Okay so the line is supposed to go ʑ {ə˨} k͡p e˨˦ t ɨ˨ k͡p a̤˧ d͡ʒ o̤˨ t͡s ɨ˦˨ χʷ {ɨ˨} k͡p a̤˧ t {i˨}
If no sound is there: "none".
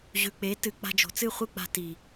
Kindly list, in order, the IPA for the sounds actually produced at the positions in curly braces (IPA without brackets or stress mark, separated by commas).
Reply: ʉ˨, ɨ˦˨, i˨